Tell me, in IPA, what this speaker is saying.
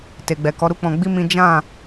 te˨ɡ͡bɛ˨kɔ˨˦ ɾu˦k͡pɔ̃˧ ɡ͡bi˦ mĩ˦ d͡ʒã˦˨

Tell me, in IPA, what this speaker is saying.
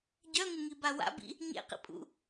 ɟœŋɪŋiba wa̰bḭ | ɲḛqḭpʼṵ

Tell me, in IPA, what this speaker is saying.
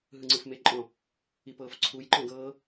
ɦɯŋ͡ǀɯfmeǃʼɔ̃ | ipɤːfǀʰuj ǃɔ̃ɡɤː

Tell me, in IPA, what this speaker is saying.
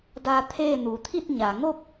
da˧ t̪ʰeː˥˨ nuː˩t̪ʰi˥˨t̚ ɲa˩ŋo˥˨p̚

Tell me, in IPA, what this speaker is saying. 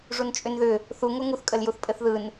ʐunt͡ʃʼʏnðʏ | θu ŋoŋuθkʼəl juθpʼɘθðɯn

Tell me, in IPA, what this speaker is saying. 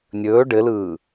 nʲɵː ɖɘlɯː

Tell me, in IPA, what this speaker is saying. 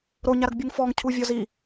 ɾoɲaɾɐɡbʲuŋ fɔŋcʰuvʲɔz i

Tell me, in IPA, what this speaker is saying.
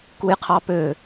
kujqʰɑpø

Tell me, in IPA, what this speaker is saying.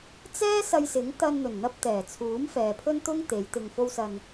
t͡sɛː˥ sɐ˧jsɪ˨˥ŋ t̪ɐ˧nn̪ɵ˨˩n n̪ɐ˧p̚t̪ɛː˨˩t͡sʰuː˨˥m fɛː˨pʰɵ˥nt̪ʊ˥ŋt̪e˨˧j t̪ɪ˨ŋfo˧wsɐ˨n

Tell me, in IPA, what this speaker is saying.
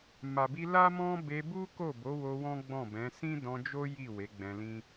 ma˨bi˧ la˦mɔ̃˦ be˧bu˦ ko˦˨bo˨˦wo˧ wɔ̃˦ɡ͡bɔ̃˦˨bɛ̃˨˦ sĩ˦dɔ̃˧d͡ʒo˦ ji˦˨ we˨˦ ɡ͡bɛ̃˧lĩ˦

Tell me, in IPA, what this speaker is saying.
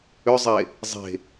ʏzˤe | zˤe̤

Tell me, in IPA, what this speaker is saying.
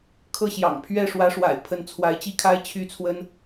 kʰɤ˥˩ ɕjɑ̰˨˩ŋ pʰɥɛ˥˩ʂwä˧˥ʂwa̰˨˩ɪ̯ pʰə˧˥nt͡sʰwa˧˥ɪ̯t͡ɕi˥˩kʰa˥ɪ̯ t͡ɕʰy˥t͡sʰwə˥n

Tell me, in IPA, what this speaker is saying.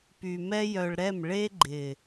py˨mɛ˧jœ˨ɭ ɾɛ˦˨m ɭe˧ɡ͡ǃɪ˨

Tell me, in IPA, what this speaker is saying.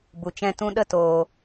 bu˧t͡ʃɛ̃˦tũ˦ ɗə˦toː˧

